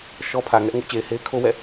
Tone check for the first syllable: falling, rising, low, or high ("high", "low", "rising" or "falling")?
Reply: high